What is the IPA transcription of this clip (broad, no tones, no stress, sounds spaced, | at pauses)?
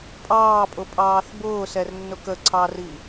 pʼ ɑː pʼ ʊ pʼ ɑː θ b ʊː s ɛ r nː ʊ k ə ǀʰ ɑ r i